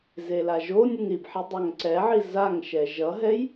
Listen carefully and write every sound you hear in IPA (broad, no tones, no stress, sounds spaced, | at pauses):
z e l a ʒ o nʲ ɨ ŋ ɾ i b ħ i dˤ a ŋ ǀ ɛ ʕ i z a ŋ ʃ ɛ ʒ ʌ ɦ ɛ j